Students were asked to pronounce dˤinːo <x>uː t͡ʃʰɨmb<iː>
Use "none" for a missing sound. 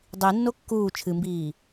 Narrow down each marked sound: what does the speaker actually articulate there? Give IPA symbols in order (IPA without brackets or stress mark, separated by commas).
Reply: kː, iː